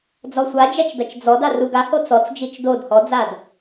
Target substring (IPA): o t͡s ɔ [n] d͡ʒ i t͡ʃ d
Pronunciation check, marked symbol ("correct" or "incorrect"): incorrect